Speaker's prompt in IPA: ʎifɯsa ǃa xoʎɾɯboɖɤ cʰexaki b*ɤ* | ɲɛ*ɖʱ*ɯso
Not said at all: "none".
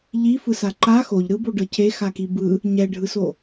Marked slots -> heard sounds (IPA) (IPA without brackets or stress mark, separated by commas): ɯ, ɖʱ